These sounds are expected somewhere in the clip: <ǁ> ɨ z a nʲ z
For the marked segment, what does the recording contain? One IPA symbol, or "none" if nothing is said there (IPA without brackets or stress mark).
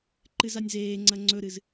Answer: ǃ